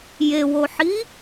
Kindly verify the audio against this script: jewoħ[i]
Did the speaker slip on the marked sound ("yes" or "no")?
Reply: no